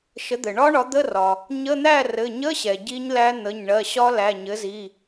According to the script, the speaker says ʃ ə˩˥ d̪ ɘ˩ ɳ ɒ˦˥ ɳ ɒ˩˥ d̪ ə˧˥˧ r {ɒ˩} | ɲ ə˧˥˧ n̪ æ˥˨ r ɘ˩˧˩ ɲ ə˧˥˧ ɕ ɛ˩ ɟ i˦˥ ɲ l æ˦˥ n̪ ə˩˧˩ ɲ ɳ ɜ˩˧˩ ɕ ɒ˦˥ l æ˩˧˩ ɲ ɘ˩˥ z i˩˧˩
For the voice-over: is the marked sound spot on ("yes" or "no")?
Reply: yes